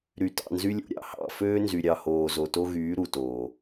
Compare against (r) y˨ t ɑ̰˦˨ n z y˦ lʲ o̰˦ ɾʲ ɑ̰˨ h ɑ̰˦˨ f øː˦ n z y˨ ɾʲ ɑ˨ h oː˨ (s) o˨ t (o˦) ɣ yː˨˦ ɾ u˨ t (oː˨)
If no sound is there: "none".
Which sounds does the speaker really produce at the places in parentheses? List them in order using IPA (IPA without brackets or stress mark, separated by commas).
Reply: ɾ, z, o˦, oː˨